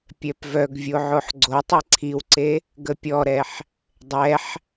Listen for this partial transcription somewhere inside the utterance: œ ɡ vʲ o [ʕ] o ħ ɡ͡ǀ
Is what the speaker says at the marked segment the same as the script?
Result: yes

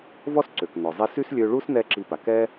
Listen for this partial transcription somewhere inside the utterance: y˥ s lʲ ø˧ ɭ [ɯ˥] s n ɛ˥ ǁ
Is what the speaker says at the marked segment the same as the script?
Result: no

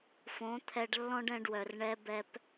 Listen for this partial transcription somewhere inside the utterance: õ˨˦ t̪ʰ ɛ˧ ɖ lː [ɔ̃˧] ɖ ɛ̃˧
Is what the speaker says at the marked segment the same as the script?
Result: no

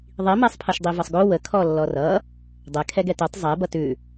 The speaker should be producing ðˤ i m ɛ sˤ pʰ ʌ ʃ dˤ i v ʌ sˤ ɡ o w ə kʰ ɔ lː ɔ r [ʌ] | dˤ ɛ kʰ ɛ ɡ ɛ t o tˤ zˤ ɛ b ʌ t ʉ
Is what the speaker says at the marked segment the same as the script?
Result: yes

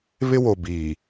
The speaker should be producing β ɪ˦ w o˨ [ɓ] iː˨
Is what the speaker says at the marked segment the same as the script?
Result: no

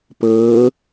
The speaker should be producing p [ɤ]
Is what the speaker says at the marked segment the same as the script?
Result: no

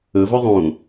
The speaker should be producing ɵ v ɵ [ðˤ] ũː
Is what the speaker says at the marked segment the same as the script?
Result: yes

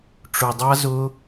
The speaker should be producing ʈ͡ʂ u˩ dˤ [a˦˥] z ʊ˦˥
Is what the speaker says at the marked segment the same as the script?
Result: yes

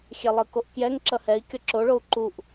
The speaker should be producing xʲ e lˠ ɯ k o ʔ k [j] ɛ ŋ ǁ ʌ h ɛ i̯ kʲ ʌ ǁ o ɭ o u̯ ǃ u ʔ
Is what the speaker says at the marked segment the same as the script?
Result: yes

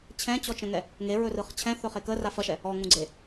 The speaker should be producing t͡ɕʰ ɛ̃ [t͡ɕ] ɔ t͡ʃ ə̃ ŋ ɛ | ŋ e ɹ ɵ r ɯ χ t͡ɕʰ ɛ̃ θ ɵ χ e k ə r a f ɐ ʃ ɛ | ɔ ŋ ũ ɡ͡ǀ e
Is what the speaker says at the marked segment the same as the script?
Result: yes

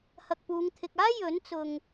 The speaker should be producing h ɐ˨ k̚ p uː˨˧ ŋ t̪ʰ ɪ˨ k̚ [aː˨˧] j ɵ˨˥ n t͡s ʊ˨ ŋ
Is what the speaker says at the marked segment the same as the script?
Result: no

